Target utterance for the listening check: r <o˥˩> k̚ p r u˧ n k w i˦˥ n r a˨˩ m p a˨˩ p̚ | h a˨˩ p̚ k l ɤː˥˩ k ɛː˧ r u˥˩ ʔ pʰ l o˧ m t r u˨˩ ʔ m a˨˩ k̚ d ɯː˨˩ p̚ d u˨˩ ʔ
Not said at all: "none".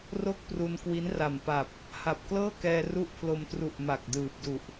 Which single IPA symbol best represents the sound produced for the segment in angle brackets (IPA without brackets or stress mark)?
o˥˩